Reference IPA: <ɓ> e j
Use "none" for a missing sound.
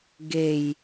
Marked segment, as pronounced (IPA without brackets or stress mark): ɡ